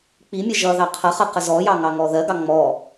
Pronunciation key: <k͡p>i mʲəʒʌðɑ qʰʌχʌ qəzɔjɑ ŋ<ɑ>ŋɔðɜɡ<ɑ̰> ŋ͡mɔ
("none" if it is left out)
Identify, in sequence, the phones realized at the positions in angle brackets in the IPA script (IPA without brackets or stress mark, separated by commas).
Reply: k͡p, ɑ, ɑ